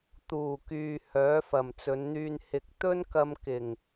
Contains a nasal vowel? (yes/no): no